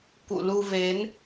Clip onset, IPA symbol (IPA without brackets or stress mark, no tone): k